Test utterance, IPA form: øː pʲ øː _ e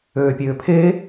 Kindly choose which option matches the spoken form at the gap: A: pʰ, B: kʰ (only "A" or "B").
A